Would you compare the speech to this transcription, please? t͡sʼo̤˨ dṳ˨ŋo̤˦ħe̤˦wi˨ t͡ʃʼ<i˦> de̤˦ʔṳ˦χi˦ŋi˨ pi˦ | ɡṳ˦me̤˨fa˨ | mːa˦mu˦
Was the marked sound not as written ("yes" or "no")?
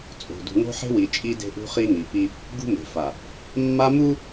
no